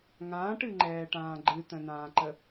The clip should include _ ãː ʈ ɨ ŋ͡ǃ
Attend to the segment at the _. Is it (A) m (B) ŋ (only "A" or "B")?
B